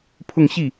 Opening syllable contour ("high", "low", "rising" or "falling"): falling